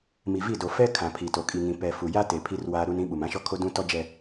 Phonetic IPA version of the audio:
mi˨vi˦˨ do˨ fɛ˦ kʰã˨pʰi˨to˨ kʼi˨ŋĩ˨ pɛ˨ fu˨ja˦te˨ pʰi˦rwaː˦ ɾu˦nĩ˦ ɓu˨mã˦ʃɔ˦kʰo˦ dũ˦ tɔ˦d͡ʒɛ˦

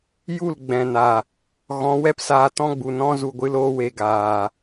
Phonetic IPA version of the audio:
ju˦˨l ɡ͡bɛ̃˨na˨ | ɣɔ̃˨˦wɛ˦psaː˧ tɔ̃˦ɡ͡bu˨nɔ̃˦ zu˨ ɡʷɨ˦l oː˧we˨ ɡaː˨

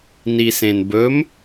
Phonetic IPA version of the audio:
nisẽnbɵm

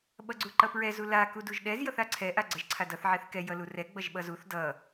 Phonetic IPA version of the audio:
ɓʌɡ͡ǀuǃʌpɹɛ zula kuduʒɗɛz jʌθaǀʰɛ ʔaɡ͡ǀʌʒǀʰadʌθ ʕɛθkɛ jʌlurɛ ɡ͡bʌʒɓʌzuθ dʌ

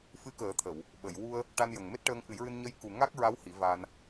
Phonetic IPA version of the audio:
fɨ˧˥kəː˨˩˦t̪ʰə˨˩˨w | ɓə˨˩˨jwu˧ə̯ | ʈa˧njə˨˩ŋ me˦˥t̚ʈəː˧ŋ ʔɨ˨˩˦jɹɨ˧n ɲə˧j ku˨˩ ŋa˦˥k̚ɹa˧˥w hi˨˩˦va˧n

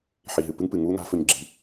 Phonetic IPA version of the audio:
ħi˨ɦɨ˨pɨ˦ŋpɨ˨ ŋu˦ŋa̤˨˦ fɵ˨ɲɡ͡ǁi̤˨˦

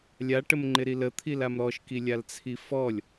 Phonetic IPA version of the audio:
lʲaʈəmŋ͡ǃɪɾi lət̪ʰilam ɾɔʃkilʲalt͡sʰi fɔlʲ

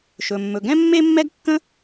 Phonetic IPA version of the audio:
ʃɵ˩mːɵ˩ɡɛ̃˥ mːe˥mːɛ˥ɡkːə̃˥

